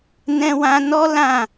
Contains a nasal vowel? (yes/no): yes